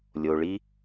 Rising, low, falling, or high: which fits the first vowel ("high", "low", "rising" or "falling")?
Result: low